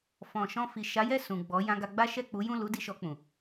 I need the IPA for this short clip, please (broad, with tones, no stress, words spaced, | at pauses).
fɔ̃˨ ʃɔ̃˧fi˨ ʃa˨˦jɛ˦˨ sũ˨ɡ͡bɔ˨˦ jã˧ɡa˧ɡ͡ba˦ ʃɛ˦˨k͡pu˨˦jũ˦˨ lu˨˦ di˧ʃɔ˧k͡pũ˨